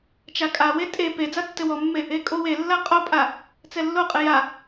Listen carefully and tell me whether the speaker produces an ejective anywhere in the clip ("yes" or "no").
yes